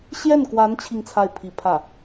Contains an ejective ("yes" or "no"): no